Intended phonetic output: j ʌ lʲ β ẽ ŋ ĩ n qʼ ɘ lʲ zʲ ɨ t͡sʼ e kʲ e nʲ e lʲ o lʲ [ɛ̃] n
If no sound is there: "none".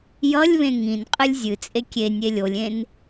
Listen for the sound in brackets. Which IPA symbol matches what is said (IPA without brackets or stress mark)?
ẽ